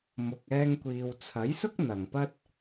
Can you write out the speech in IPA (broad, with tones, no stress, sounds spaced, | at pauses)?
m ʊ˨ k̚ ɛː˧ ŋ kʷ iː˨ w t͡sʰ ɐ˨˥ j s ʊ˥ k̚ n̪ ɐ˨ ŋ p ɐ˥ t̚